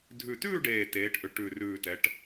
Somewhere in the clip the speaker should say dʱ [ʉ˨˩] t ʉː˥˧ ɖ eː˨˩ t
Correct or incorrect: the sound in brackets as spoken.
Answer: correct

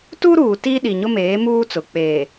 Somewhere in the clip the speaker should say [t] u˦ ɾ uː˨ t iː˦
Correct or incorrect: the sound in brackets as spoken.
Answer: correct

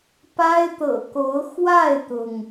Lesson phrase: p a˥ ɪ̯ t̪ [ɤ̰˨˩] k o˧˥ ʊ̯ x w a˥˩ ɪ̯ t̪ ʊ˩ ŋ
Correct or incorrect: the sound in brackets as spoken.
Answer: correct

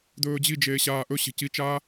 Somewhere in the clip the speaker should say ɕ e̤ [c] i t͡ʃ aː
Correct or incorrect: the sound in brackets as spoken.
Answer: correct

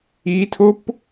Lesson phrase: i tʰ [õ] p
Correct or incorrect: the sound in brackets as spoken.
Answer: incorrect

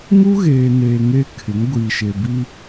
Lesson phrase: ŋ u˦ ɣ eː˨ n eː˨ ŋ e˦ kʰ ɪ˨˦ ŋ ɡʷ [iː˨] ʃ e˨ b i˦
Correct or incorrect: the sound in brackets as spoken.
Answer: correct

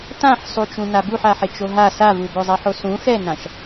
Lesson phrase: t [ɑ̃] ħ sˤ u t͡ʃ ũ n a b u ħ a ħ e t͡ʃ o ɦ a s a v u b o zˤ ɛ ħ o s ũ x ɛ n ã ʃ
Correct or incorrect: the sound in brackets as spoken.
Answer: incorrect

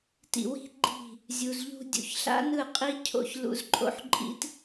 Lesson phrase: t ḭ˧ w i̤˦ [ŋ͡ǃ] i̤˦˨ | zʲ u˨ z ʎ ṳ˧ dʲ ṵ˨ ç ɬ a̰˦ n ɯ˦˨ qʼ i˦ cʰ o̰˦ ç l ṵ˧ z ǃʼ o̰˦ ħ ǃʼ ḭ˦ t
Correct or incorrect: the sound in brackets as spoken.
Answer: incorrect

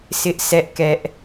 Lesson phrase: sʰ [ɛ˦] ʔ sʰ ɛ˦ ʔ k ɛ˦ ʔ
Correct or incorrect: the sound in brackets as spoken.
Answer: incorrect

